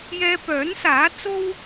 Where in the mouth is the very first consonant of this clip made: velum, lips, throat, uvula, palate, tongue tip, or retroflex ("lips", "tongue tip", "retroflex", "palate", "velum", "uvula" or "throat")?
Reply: palate